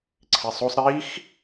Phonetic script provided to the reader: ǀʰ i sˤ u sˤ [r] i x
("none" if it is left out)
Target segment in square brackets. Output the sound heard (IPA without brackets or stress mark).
ɾ